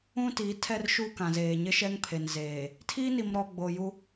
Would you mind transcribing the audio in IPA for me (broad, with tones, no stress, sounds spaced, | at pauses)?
ũ˦ t i˨˦ tʰ ɛ˦ r ʃ uː˦ k ã˨ z eː˨ ɲ ɪ˦ ʃ ɛ˦ ŋ pʰ e˨ n z eː˨ | tʰ i˦ n i˨ m ɾ ɔ˨ ɡ͡b o˨ j u˦